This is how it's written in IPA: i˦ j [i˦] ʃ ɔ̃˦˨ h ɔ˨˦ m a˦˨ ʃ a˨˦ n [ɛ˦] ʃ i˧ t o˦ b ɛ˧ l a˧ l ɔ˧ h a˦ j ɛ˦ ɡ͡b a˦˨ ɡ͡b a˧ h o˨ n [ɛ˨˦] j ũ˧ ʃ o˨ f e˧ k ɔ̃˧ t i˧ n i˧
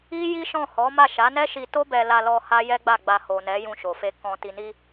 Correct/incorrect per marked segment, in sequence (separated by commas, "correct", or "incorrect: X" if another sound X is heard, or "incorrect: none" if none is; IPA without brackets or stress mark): correct, correct, correct